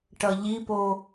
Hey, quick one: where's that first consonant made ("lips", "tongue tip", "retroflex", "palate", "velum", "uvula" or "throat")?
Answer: retroflex